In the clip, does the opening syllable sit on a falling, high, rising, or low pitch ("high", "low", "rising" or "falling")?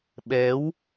rising